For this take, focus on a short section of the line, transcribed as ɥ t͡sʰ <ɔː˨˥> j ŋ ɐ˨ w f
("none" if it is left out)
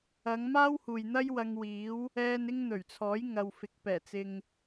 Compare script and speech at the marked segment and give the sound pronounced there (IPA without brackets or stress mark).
ɔː˨˥